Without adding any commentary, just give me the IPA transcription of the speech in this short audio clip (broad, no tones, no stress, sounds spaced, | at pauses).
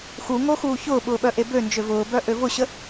x u ŋ o x uː ç ʊː ɓ ʊː ɓ œ ʔ e b ø n d͡ʒ ø v ʊː b œ ʔ ø v ʊ ɕ ə